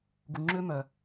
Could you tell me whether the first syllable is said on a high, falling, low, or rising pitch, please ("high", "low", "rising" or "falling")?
low